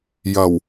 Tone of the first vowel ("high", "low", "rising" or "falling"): low